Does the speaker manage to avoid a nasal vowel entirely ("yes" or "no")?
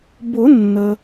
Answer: yes